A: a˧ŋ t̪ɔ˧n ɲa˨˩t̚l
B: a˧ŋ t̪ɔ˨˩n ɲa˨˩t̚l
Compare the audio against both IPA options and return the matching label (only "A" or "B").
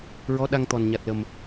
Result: B